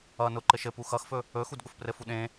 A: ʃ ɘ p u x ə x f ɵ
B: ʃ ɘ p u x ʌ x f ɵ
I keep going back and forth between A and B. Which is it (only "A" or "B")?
B